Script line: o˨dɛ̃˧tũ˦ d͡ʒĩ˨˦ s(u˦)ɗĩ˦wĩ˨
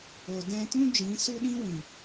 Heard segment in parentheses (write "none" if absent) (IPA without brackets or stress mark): u˦